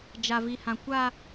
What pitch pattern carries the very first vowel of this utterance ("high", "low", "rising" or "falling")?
low